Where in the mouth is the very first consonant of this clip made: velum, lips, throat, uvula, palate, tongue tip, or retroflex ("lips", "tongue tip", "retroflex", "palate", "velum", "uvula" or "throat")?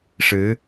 retroflex